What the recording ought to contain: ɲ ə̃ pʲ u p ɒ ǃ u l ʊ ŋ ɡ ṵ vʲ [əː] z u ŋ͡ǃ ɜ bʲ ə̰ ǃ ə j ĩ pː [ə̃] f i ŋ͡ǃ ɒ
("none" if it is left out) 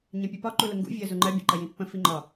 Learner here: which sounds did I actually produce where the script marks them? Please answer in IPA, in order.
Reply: əː, ə̃

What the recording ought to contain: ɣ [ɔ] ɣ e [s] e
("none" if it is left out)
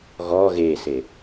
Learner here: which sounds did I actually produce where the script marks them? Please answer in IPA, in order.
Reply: ɔ, s

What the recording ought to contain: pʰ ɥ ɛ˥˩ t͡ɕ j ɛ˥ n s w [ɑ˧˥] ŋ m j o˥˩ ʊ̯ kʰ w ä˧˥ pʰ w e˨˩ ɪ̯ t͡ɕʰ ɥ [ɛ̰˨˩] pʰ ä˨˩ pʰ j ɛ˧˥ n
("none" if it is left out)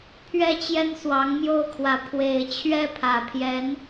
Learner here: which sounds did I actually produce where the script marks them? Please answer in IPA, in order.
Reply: ɑ˧˥, ɛ˥˩

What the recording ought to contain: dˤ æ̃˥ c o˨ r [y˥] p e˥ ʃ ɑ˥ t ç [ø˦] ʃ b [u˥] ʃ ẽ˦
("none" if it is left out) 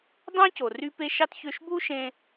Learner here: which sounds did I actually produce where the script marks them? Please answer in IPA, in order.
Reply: y˥, ø˦, u˥

